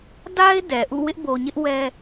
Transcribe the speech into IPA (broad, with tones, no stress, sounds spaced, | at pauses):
d a˦ ɪ̯ d ɛ˨ ʔ ṵ˦˨ w ɪ˦ ʔ b o˨ ɲ ɪ˦ ʔ w ɛ˦